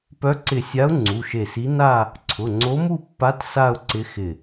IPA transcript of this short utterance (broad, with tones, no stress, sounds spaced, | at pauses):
p œ˧˥ ǀ ɪ˧˩ sʲ a˧˥ ʊ̯ ŋ͡ǀ u˩˧˩ ʃ e˧˩ s i˧˥ n a˥˧ | ǀʰ ʊ˩˧˩ ŋ͡ǀ o˧˥ m u˥˧ pː a˧˥ t s a˥˧ ʊ̯ ǀ ɪ˧˥ x ɪ˧˩